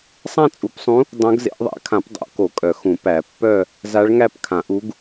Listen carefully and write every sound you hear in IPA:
sˤ ã˥˧ t͡sʼ u˨˩˦ p sˤ ũ˧˥ | dˤ õ˧˥ ɡ z ḛ˨˩˦ ʔ ðˤ æ̰˨˩˦ kʰ ã˨˩˦ p dˤ o̰˨˩˦ k o˨˩˦ kʼ œ˨˩˦ x ũ˨˩˦ p æ˨˩˦ pː œ˥˧ | z a˧˥ ɭ ŋ æ˥˧ p kʰ ã˨˩˦ ʔ u˧˥ ɡ

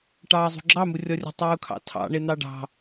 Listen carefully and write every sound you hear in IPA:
ʈ ɑː zˤ ṳ ɡ͡ǁ ɑ m u rʲ ɔ rʲ ə̤ tˤ uː kʰ ɑ̰ tʰ ɑ̰ ɳ e n̪ ɑ ɖ ɑ̤

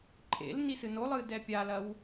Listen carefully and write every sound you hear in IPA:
ǃʼ ḛ l n i s ɨ n o lˠ ɨː d ɛ pʲ a l ɐ w

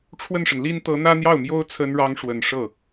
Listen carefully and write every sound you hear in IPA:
ʈ͡ʂʰ w ə˥˩ n ʂ ə˩ n l i˥ n t̪ ɤ˧˥ n̪ ä˥ n̪ j ɑ˥˩ ʊ̯ m j o˥ ʊ̯ t͡sʰ ə˥ n ɻ ɑ˥ ŋ ʂ w ə˨˩ n ʂ ɤ˥˩

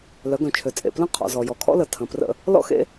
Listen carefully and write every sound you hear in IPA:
l œ˨˦ ɡ œ̃˨ t͡ʃʰ ø˨ t͡sʼ ḛ˨ p l ə̃˦ qʰ ɔ̰˨ z ɔ˨ j ɔ˨ kʰ ɔ̰˦ l ə˨ tʰ ə̃˨ p r ə̰˦ | l ɔ̰˦ x ḛ˦

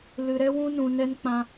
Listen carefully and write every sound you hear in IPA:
l ɨ˧ ɾ ɛ˦ w ũ˦ n ũ˧ n ɛ˦ n k͡p ã˦

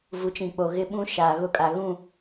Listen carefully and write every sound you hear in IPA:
v u˨˦ t͡ʃ ĩ˨ k͡p o˨ ɣ ɪ˦ ɓ ũ˦ ʃ aː˨ ɣ ʊ˦ kʼ a˨ ɣ ũ˦˨

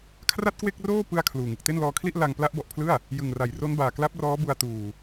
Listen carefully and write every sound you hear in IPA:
kʰ r a˥˩ t̚ k w e˥˩ k̚ r oː˥˩ p ɯ˥˩ a̯ kʰ l uː˨˩ ŋ ɯ˨˩ k̚ t e˥˩ n l ɔː˧ kʰ l i˥˩ ʔ l a˧ ŋ p l a˦˥ ʔ b ɔ˨˩ ʔ pʰ l ɯ˥˩ a̯ | j ɯ˨˩ ŋ r a˩˦ j r o˦˥ n b aː˨˩ k l a˦˥ p̚ r ɔː˦˥ b u˧ a̯ t uː˨˩

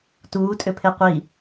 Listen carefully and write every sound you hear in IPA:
t uː tʼ ʏ pʰ e qʷ i

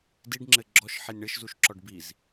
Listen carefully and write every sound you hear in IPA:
d i ɖ ŋ͡ǁ ɘ ɡ͡ǁ ɔ ʃ ħ i nʲ ɳ ɘ ʃ z u ʃ ǁ ɔ ɖ b i z

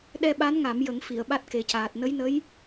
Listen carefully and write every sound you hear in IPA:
ɗ ɛ˧ ɓ a˧˥ n ŋ a˨˩˦ m j ə˨˩˦ ŋ f i˨˩˨ ə̯ ɓ a˦˥ t̚ k e˨˩˦ c aː˨˩ t̚ n ə˧˥ j n ə˧˥ j

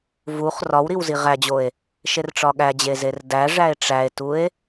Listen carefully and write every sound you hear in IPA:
v u χ r ɒ w ɾ i w z i ʁ æ d͡ʑ o e̯ | ʃ e r ʈ͡ʂ ɒ ɠ æ d͡ʑ e z e r d æ ʐ æ e̯ ʈ͡ʂ æ e̯ t u e̯

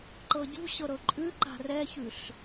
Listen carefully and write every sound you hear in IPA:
ǃ ɤ ɟ ṳ ɕ ɤ ɾ ɤ ǃʼ ʉ ǃ a̤ r ɛ ç ʉ ɬ

